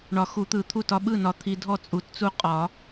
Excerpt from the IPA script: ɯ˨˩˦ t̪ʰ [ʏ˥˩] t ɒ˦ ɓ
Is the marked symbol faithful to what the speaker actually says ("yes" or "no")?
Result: no